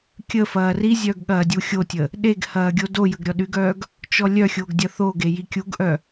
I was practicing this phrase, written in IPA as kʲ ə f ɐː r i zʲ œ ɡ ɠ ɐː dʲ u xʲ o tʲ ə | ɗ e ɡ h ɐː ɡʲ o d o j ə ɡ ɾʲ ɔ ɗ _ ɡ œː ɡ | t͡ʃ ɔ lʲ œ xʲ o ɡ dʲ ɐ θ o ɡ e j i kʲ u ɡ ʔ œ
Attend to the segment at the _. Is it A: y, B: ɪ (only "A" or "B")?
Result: A